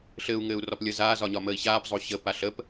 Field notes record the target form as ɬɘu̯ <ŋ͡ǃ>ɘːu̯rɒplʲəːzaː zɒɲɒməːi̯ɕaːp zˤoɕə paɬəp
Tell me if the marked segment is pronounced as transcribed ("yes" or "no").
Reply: no